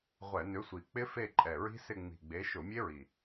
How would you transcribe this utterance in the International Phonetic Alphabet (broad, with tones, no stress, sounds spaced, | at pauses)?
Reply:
ʁʷ ɛ˧˩˧ n ʏ˨˥ sʷ i˨˩ k͡p ɪ˦˥ f e˦˨ ǃʼ ɛ˨˩ ɹ i̤˦˥ s ɪ˦˨ ŋ͡m i̤˨˩ ɡ͡b e˨˥ ʃ ʊ˧˩˧ mʲ e˦˥ ɹ i˨˩